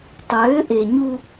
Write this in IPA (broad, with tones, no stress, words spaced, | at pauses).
tˤøː˨˦ʔe˨ɲu˦